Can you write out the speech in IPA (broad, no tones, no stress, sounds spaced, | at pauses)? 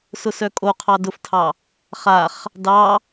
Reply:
s ʊ s œ kʼ o qʰ ɑ d ʊ f tʰ ɑ | χ a χ | d ɑ